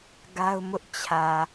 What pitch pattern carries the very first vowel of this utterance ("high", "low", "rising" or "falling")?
high